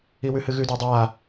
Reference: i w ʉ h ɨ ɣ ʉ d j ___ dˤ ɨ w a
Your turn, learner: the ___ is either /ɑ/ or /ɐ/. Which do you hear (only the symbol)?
ɐ